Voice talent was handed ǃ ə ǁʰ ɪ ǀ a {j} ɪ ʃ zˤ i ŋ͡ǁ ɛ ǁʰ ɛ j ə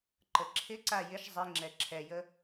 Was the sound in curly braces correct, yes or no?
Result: yes